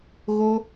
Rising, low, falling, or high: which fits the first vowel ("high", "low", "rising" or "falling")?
high